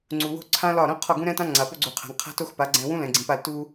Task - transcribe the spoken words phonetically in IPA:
ŋ͡ǀ u˨ w o̤˦ ǀʰ ã˦ l ɒ˦˨ ɾ õ˦ qʰ ɒ˦˨ ɡ ũ˦ ɾ ɛ̃˦ t ã˦ ŋ͡ǀ a˨ p o˦ ɡ͡ǀ u˨ qʰ a̤˨ ŋ qʰ a̤˦ t o˦ x p a˨˦ ɡ͡ǀ ɛ̃˨ w ũ˦ l ɛ̃˨ ɡ͡ǀ ĩ˨ p a˦˨ l t u˦

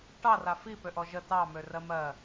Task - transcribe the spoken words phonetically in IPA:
ʈ ɑ r a f i p ø ʔ ɔ ʒ ə t ɑ m ø r ɜ m ɜ

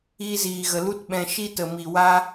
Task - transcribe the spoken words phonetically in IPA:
iː˧ z iː˨ ɣ ə˨ l u˦ t ɓ ɛ̃˧ ʃ i˦ t ə˨ m i˨ w a˧

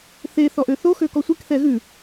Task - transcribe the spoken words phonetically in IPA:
θ e θ ɔ ʔ ø θ o x ø k ɔ sʷ i k θ ɛ ɣ ʉ

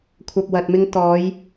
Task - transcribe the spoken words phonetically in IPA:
kʷʰ ɐ˨ p̚ w ɐ˨ t̚ m ɪ˧ ŋ t̪ ɔː˨˧ j

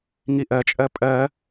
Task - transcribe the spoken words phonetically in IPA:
ŋ i ʔ ɜ t͡ʃʼ ɜ pʼ ɜ

